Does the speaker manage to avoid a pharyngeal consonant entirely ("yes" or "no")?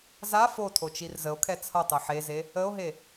no